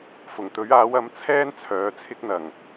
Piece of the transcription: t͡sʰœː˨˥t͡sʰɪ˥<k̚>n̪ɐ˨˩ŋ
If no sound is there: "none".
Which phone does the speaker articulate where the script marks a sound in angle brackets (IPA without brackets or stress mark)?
k̚